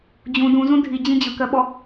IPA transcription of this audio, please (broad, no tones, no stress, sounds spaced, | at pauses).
d͡ʑ ũ d ũ z ũ dʱ i d͡ʑ ĩ d͡ʑ ɯ k ɜ ɓ ɔ